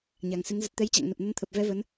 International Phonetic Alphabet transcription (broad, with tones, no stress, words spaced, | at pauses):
ɲa˨˩ŋsɨ˨˦ŋ zə˨˩t̚t̪ɛ˨˦jt͡ɕa̰˧˨ŋnə˨˩p̚ nə˨˦nt̪ʰə˨˩p̚vɛ˨˦ və˨˦n